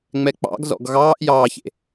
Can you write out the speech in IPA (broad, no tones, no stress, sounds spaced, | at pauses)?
ŋ͡m ɛ k͡p ɑ̰ ɡ z ɔ̰ ɡ ɣ ɑː ʔ j ɑː ç ḛ